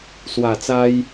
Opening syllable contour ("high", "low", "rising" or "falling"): low